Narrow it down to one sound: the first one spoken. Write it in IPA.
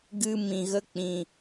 ɡ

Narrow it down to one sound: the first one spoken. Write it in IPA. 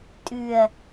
tʼ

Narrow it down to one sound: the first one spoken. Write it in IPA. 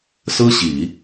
s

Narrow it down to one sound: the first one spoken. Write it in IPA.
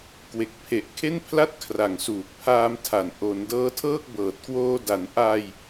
k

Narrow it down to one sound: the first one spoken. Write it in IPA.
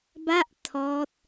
b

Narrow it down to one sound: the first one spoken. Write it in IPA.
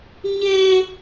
ɲ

